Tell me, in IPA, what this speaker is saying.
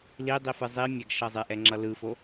l i dˤ i f ɯ zˤ i mʲ ɛ ɡ ʃ ʌ zˤ e ʔ ɛ ŋ͡ǁ ʌ l ɯ f o

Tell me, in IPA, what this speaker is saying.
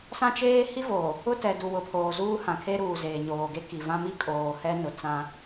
s ã˦ t͡ʃ eː˦ h i˦ v oː˨ | ʊ˦ t ɛ˨ d u˨ w ʊ˨ pʰ oː˨ z uː˦ h ã˨ kʰ e˦ ɾ uː˨ z eː˨ ɲ oː˨ ɡ e˦ k i˨ v ã˦ m i˦ kʼ oː˨ h ɛ˦ n ʊ˨ t͡s ã˦

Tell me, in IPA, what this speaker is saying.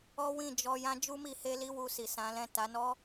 ɔ˦ w ĩ˦˨ d͡ʒ ɔ˧ j ã˦ d͡ʒ u˦ m i˧ h e˦ l i˦ w u˧ s i˨ s ã˨˦ l ɛ̃˦˨ t a˨˦ n ɔ˦

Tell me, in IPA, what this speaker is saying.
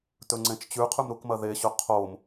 t ɵ ŋ͡ǀ ẽ t͡ʃ t͡ɕ ʉ qʰ ʉ m ɾ u k m ɐ ð e ɕ ɵ qʰ o m

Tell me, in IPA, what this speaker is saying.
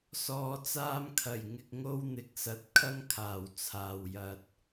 s ɔː˨ t͡s aː˧ m kʰ ɐ˨˩ j ŋ ɪ˧ k̚ ŋ o˥ w n̪ ɪ˨˥ k̚ s ɐ˨˥ t̚ kʰ ɐ˥ ŋ kʰ aː˨˩ w t͡sʰ aː˨ w j ɐ˧ t̚

